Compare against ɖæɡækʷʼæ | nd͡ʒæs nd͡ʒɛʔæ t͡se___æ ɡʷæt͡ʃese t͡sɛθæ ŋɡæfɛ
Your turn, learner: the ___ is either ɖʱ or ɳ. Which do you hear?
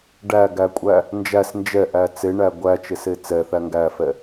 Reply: ɳ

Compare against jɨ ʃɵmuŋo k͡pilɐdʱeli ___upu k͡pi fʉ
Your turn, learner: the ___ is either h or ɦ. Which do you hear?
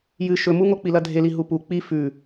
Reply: ɦ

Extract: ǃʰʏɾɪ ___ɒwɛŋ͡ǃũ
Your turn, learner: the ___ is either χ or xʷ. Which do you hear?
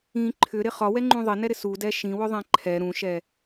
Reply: χ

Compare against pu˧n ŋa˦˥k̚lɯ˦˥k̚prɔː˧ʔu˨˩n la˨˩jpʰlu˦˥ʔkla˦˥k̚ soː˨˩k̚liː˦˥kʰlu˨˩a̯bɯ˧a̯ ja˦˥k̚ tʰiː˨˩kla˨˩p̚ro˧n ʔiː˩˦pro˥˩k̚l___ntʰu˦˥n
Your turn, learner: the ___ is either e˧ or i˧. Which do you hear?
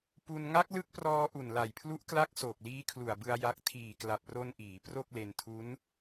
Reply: e˧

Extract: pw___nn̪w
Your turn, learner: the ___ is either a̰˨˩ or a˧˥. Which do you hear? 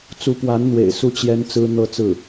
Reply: a˧˥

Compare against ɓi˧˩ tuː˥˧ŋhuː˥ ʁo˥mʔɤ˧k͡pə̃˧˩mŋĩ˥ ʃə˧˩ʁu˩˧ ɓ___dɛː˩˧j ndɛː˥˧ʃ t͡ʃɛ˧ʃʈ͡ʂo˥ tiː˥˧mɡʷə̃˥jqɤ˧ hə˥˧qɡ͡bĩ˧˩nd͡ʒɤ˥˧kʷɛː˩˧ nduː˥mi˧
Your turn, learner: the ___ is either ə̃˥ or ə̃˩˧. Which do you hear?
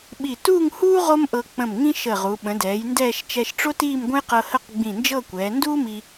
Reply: ə̃˩˧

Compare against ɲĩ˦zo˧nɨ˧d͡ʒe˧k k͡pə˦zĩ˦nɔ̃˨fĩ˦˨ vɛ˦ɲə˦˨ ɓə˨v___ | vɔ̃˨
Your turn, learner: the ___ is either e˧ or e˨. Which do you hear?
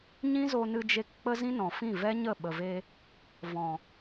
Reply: e˧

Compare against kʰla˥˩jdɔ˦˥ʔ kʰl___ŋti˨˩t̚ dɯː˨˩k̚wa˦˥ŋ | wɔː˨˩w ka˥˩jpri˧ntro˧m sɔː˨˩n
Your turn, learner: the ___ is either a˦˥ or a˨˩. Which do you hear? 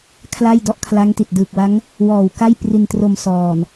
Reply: a˦˥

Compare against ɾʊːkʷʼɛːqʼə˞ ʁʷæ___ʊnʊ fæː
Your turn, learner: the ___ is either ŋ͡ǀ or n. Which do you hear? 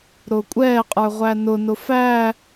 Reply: n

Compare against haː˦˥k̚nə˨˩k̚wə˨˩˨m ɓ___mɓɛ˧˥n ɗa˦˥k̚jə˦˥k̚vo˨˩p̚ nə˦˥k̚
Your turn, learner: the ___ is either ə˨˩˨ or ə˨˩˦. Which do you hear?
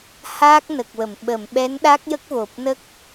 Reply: ə˨˩˨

